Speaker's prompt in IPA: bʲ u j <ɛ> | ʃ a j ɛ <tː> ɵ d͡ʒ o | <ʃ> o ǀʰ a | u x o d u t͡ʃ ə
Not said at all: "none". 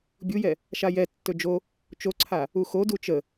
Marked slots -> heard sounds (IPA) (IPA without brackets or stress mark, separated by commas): ɛ, tː, t͡ʃ